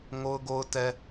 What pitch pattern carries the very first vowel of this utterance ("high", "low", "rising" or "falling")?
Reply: high